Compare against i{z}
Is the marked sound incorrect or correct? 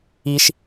incorrect